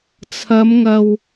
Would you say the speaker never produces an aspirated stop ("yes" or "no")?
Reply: no